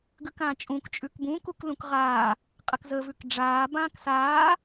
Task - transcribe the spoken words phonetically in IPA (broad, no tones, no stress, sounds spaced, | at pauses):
ɡ ʉ k ãː t͡ʃʼ ũ k t͡ʃʼ ʉ k b ũː k u k l ũ k ʁ aː | qʼ ɘ k z ə v ʉ k ɖ͡ʐ aː b ãː k s aː